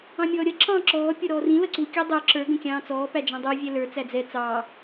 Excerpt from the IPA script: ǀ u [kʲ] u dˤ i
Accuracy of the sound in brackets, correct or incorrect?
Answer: correct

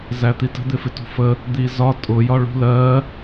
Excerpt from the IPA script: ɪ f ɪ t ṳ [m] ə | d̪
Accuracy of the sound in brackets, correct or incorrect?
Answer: incorrect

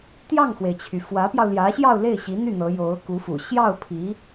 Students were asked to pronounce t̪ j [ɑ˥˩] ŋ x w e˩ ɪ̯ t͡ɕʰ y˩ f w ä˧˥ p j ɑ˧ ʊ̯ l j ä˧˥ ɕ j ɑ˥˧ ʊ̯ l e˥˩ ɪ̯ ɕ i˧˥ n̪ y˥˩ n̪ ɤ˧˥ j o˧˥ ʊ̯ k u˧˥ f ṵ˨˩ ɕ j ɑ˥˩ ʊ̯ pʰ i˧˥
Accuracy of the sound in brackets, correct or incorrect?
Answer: correct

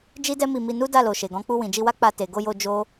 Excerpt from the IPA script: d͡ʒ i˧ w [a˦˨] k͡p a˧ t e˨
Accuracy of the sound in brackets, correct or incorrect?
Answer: incorrect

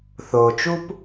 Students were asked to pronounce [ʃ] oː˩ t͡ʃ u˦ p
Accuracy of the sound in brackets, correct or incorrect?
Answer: incorrect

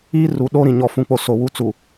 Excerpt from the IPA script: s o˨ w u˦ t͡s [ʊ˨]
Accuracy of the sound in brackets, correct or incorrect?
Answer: incorrect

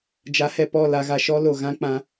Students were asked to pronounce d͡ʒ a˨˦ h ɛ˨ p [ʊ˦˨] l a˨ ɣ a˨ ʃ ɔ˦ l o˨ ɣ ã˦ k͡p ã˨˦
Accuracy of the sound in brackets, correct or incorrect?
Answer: incorrect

